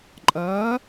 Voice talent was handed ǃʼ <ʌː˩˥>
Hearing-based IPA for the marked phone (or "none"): ʌː˩˥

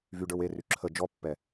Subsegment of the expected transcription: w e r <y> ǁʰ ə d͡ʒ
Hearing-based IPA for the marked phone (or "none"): y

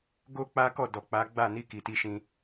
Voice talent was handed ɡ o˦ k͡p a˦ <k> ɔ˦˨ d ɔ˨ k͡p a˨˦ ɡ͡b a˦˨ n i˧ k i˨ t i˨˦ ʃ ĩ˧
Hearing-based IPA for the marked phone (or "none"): k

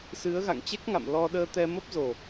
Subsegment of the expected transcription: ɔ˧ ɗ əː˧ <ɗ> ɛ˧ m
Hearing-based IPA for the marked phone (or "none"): t̪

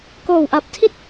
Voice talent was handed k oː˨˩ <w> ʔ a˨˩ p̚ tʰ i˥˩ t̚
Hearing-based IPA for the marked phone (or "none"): w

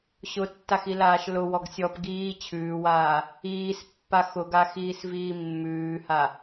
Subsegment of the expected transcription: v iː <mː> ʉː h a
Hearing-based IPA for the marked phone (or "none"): mː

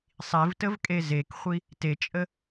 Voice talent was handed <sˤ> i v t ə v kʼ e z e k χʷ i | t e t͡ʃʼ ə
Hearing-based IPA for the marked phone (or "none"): sˤ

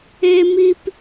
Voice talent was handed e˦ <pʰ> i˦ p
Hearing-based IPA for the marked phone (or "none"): m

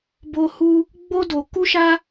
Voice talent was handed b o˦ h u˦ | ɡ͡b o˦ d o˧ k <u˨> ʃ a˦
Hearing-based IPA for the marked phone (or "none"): u˦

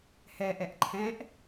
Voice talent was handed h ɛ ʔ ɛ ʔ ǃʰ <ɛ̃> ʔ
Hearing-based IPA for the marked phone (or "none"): ɛ̃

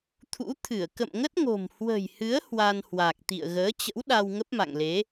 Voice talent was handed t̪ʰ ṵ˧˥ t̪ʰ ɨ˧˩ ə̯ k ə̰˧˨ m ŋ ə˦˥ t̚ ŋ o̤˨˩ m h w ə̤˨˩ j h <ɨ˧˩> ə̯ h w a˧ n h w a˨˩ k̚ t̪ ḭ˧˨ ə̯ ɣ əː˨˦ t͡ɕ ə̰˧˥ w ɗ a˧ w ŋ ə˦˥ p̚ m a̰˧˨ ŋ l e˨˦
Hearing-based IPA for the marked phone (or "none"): ɨ˨˦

